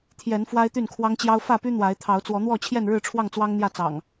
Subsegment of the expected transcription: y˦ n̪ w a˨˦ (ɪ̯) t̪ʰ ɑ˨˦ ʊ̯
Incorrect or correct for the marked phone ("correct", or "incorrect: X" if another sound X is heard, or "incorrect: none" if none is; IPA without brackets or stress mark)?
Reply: correct